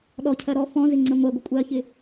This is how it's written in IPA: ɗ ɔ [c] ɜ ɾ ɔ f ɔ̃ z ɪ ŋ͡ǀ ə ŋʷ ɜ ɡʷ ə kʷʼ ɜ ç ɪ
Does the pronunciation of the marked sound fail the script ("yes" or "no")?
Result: yes